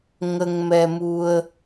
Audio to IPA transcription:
ŋ ə˧ ŋ m ɛ˧ m u˧ ə̯

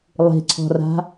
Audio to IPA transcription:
lˠ i̤ ǀʰ ɔ̤ r a̤

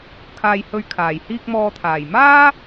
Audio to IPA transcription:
kʰ aː˨ j h ɵ˨ ɥ kʰ aː˨˩ j h iː˧ k̚ m ɔː˨ t̪ʰ aː˨˩ j m aː˥

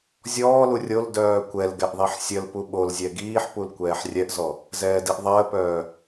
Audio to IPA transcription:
zʲ ɔː l u rʲ o l d œː kʷ ɛ l ɡ ɛ ʔ ðˤ i ħ sʲ ə l p u ɓ o l zʲ ɛ ɡ iː ħ p u l kʷ ɛː ħ rʲ ɛ ʔ z ɔ | z ɛː d i ʔ ðˤ əː p œː

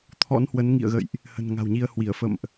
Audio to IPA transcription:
t̪ʰ ɔ̰˧˥ n h w ə˨˦ n ŋ ḭ˧˨ ə̯ ɣ ə̰˧˨ j ʔ | h ə̤˨˩ n ŋ a̤˨˩ w ɲ i˧ ə̯ h w i˧˩ ə̯ f ə̰˧˨ m ʔ

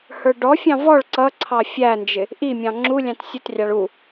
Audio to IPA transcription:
h ə˞ ɖ ɔ fʲ ɑ̃ v ɔ ɭ ǀ ʌ ǀʰ ɑ fʲ æ n d͡ʒ ɪ | ʔ i mʲ ɑ̃ ŋ͡ǁ u lʲ ɑ̃ t sʲ ʊ t rʲ ɑ ɭ u

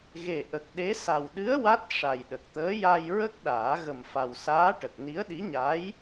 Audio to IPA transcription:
ɣ e˨˩ ʔ ə˨˩ k̚ ɗ e˧˥ s a˨˩ w ɗ ɨ˧˥ ə̯ w a˦˥ t̚ ʂ a˨˩ j ɗ ə˨˩ k̚ t̪ əː˧˥ j a˧ j ɹ ə˦˥ k̚ ɗ aː˨˩˦ ɣ ə˨˩ m f a˨˩ w s aː˧˥ ʈ ə˨˩ k̚ n i˧˥ ə̯ ɗ i˧˥ ɲ a˧˥ j

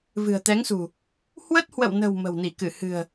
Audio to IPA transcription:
v ɨ̤˨˩ ə̯ t̪ ɛ˨˦ ŋ s ṳ˨˩ | h w ə˦˥ t̚ h w ə̰˧˨ w n ə̤˨˩ w m ə̤˨˩ w n i˧˩ k ɨ˧˩ h ɨ̤˨˩ ə̯

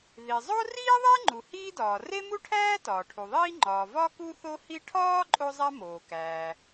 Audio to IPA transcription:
ð i˩ zˤ o˥ r iː˥ ðˤ e˥ ŋ͡ǃ u˩ h iː˥ d ɒː˩ r e˥ m u˥ ʈʰ æː˥ t ɒː˩ ʈʰ u˩ ðˤ iː˥ ŋ͡ǃ ɒː˩ v ɒ˥ k u˥ θ o˥ h i˥ ʈʰ ɒː˥ ǃʼ o˥ zˤ æ˥ m oː˩ k æː˩

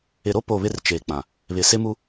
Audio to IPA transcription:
ɪ˨ ɾ o˦ p o˦˨ β ɪ˦ r t͡ʃ eː˨ k͡p ã˨ | β ɪ˨ s ɪ˦ m u˦

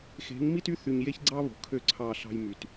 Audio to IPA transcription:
x e̤˨˦ ŋ m i˦ t y˦ θ y˨ ɲ j e˦ ç ɡ͡ǀ ɑ˦ β o̤˨ kʰ ø˦˨ ǀʰ ɑ˦˨ ɬ ɑ̤˦ j m y˨ t

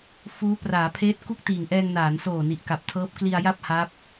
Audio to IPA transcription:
f uː˦˥ p r aː˩˦ pʰ eː˦˥ t̚ k u˥˩ k̚ t iː˨˩ ŋ ʔ ɛː˧ ŋ n aː˩˦ n s oː˨˩ n i˨˩ ʔ k a˨˩ p̚ tʰ ɤː˦˥ p̚ k l i˧ a̯ j a˥˩ p̚ h a˦˥ p̚

